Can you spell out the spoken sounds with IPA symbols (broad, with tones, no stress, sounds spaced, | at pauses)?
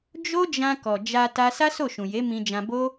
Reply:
d͡ʒ o˦ d͡ʒ ã˧ k ɔ˨ d͡ʒ a˧ t a˦ s a˦ s o˦˨ ʃ ũ˨ j e˨˦ m ĩ˧ d͡ʒ ã˧ b o˦